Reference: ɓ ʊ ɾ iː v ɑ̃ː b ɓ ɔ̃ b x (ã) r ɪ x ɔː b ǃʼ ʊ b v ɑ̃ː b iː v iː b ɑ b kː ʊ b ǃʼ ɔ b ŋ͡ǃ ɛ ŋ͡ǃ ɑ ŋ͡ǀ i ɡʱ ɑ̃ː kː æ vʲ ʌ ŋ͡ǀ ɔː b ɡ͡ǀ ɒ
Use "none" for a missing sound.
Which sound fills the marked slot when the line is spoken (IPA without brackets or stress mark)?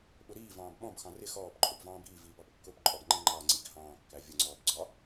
ɑ̃